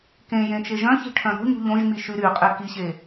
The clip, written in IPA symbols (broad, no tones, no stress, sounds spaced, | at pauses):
k ẽ j ẽ t͡ʃ e ʒ œ̃ ç i̤ ʈʰ œ̃ ɾ o̤ ɲ ṳ ʎ õ ʒ m i ʃ y ɾ y qʼ e k i ɕ e